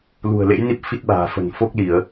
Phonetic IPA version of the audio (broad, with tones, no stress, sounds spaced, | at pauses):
l ṳ˨˩ ə̯ l ḛ˧˥ j n i˦˥ p̚ f i˦˥ t̚ ɓ a̤ː˨˩ f ə̤˨˩ n f o˦˥ k̚ l i˧˩˨ ə̯